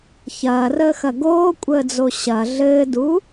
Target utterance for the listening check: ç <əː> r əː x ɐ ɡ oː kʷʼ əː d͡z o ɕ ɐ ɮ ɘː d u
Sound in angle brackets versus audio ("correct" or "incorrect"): incorrect